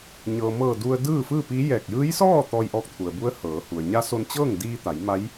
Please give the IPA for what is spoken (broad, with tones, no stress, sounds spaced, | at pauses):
ɲ ɤː˩ m ɤː˧˩ d u˧ ə̯ d ɯː˥˨ f ɯː˥˨ p iː˧˥ j ɛː˧˩ k̚ j ɯː˧˥ j s ɔː˥˨ t̪ ɔː˧ j ʔ ɔː˧˥ k̚ t̪ʰ u˩ ə̯ b u˧˥ ə̯ h ɤː˩˧ h u˩ ə̯ ɲ a˧˥ s o˧ n t͡ɕ ɤː˥˨ ŋ d iː˧ t̪ a˩˧ j m a˧˥ j